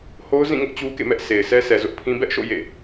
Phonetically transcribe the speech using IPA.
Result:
ho˦ʊ̯zĩ˦˨ŋʊ˦ʔ t͡ɕu˦kḛ˦˨ mɛ˦ʔsʰe˨ɪ̯ sʰɛ˦sʰɛ˨zʊ˦ʔpʰĩ˦ bɛ˦ʔʃo̰˦˨ jḛ˦˨

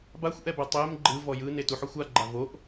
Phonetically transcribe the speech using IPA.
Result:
baxʷʔɛbɛ tˤem ɡ͡ǃɯ vɔjɯ netuħɔxʷa ɡ͡ǃavoʔ

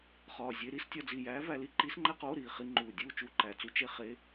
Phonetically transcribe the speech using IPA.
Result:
χɒː˨˩zʲe˧ ɾi˧˥˧stʲɒ˧d͡zi˨˩jæː˧˥ væ˧li˥ ǃiː˧˥sŋ͡ǃæ˥qoː˧˥˧ ɾiː˨˩χi˧ ŋ͡ǃuː˨˩dʲuː˥˧ t͡ʃu˧˥˧ǃæ˨˩t͡su˥ t͡ʃe˧˥˧ χe˧˥˧

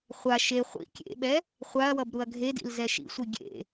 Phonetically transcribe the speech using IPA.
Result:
χʷa ʃe χʷḭ kʲḛɓɛ | χʷaɐ̯wʌb ɾuɐ̯ɡʱedḭl zɛʃḭsʷi ɡʲḛ

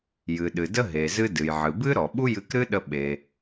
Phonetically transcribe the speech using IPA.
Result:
jɨ˩ɗɨ˩də˧ ɦe˩zɨ˧ dɨ˩j ʕɨ˩bɨ˥ɾɔ˩ ɓu˥jɨ˧kɾɨ˥ɗə˧ ɓe˩

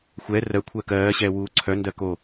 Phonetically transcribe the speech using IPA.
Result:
xʷɛ rɜkʷʰɜ kɜːɕɛːwuː ǀʰœndɜ ko

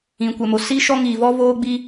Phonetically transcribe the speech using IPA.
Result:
ĩ˨kʷɛ˨mo˨ si˦ ʃɔ˦ŋiː˨vɔ˦ voː˦ ɡ͡bi˦

